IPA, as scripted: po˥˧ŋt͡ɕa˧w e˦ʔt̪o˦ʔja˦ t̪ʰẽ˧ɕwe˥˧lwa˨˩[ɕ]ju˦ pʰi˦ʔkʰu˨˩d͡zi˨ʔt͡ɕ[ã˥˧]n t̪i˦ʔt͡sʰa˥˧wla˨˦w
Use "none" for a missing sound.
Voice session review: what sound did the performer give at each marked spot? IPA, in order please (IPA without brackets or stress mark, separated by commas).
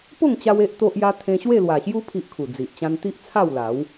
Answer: ɕ, ã˦